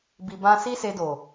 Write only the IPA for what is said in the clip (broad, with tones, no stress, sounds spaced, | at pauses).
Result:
b i˨ b ã˧ s i˦ s e˧ d o˨